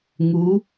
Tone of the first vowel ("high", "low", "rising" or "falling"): rising